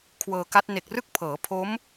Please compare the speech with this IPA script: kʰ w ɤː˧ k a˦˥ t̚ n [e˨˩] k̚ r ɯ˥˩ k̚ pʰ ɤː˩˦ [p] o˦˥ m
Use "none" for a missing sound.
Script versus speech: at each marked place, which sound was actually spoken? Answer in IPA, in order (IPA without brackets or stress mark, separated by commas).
e˨˩, pʰ